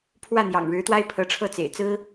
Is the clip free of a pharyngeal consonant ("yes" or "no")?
yes